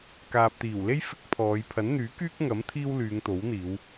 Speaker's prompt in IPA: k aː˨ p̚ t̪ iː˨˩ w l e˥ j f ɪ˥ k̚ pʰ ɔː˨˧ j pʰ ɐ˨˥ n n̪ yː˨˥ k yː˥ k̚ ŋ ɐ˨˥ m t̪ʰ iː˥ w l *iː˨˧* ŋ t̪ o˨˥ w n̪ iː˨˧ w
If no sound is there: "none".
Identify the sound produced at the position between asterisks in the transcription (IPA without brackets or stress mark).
yː˨˧